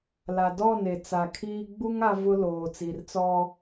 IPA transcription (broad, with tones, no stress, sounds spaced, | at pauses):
l a˨ d ɔ˦˨ n e˨ t͡s a˨ kʰ iː˦ ɡ͡b u˦ ŋ a˦ v ʊ˦ l oː˨ t͡s i˨ r t͡s ɔ˦